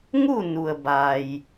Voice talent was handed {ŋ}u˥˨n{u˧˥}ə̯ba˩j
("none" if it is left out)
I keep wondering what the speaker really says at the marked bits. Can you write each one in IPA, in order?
ŋ, u˩

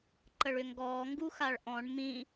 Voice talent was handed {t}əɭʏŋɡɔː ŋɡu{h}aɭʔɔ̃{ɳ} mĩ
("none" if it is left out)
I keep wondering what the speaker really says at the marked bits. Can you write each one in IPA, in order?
ǃ, x, ɳ

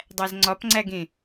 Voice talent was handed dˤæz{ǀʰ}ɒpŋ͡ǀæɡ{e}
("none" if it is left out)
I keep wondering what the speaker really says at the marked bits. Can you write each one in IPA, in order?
ŋ͡ǀ, ẽ

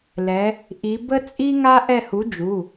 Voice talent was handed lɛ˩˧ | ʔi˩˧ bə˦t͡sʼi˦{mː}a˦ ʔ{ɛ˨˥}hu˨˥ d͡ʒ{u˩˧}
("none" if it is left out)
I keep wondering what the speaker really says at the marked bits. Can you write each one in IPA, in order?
ŋ, ɛ˦˨, u˩˧˩

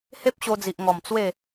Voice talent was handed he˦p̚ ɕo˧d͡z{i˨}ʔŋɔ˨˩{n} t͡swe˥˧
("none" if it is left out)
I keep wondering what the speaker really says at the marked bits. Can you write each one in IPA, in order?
i˨, m

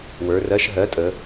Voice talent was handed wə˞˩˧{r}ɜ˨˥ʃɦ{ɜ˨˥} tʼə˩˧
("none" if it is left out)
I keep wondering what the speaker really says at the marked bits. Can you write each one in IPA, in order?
r, ɜ˨˥

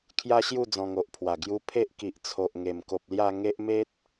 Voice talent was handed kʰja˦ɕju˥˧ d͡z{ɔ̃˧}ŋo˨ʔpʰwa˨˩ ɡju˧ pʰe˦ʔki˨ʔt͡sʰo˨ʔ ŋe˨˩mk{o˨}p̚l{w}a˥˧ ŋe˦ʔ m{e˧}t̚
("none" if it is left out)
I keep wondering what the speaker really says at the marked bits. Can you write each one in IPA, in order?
ɔ̃˧, o˨, j, e˦

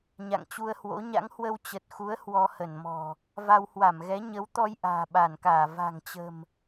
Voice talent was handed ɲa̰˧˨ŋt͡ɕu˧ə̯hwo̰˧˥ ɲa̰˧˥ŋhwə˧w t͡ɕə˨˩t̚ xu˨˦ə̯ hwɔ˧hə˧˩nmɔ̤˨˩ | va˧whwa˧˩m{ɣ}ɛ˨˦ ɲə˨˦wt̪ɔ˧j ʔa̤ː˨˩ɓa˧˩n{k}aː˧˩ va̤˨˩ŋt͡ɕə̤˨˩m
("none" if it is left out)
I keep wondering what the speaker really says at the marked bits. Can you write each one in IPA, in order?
ɣ, k

